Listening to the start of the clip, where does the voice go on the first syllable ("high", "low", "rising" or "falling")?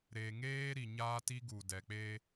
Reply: low